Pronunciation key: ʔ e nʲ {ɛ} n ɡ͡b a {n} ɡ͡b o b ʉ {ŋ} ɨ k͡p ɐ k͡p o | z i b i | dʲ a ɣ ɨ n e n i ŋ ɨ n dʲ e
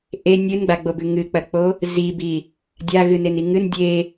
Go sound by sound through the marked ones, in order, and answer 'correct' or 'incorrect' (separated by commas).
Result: incorrect, incorrect, correct